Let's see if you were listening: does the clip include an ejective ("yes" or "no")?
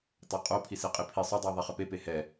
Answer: yes